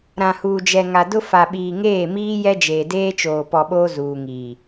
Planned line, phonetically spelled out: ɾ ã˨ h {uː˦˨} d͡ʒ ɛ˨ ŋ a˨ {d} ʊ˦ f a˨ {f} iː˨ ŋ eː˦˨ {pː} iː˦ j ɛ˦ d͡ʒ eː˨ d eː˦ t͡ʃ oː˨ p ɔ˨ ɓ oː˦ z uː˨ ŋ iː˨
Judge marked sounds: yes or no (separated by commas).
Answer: no, yes, no, no